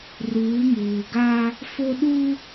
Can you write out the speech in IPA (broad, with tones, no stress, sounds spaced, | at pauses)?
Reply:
r uː˨˦ m uː˨ ɡ aː˦ | f o˦ ɗ uː˦